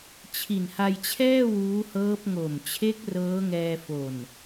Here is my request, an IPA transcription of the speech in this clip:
t͡ɕʰ i˨˩ n h a˧ j t͡ɕʰ ɛː˥˩ w uː˦˥ h ɤː˦˥ p̚ ŋ o˨˩ m t͡ɕʰ e˦˥ k̚ r ɤː˦˥ ŋ ɛː˧ f o˨˩ n

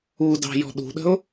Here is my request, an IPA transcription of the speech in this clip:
u d ɑ̤ j ɔ̤ ɗ ṳ ɗ ə̤ ʊ̯

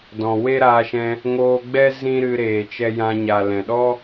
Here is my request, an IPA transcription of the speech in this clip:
d ɔ̃˨ w e˦ ɾ aː˧ ʃ ɛ̃˧ | ŋ oː˧ ɡ͡b ɛ˦ z ĩ˦ ɾ ɨ˧ ɾ eː˨ t͡ʃ ɛ˧ j ã˧ ɲ a˨ l ɛ̃˨ ɗ ɔ˦

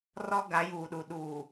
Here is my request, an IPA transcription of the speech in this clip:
r ɔ˦ ɡ a˨˦ j uː˨ ɗ u˨ ɗ uː˨

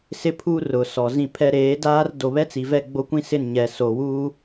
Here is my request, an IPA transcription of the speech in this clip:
s ɪ˦ pʰ u˦ r ʊ˨ s ɔ˨ z ĩ˦˨ pʰ ɛ˦ ɾ eː˨˦ d aː˦ r d o˨ β ɛ˦ t͡s i˨ v ɛ˦˨ ɡ͡b o˦ kʷ ĩ˦ s ɪ˦˨ n ɲ ɛ˨ s o˨ w uː˦

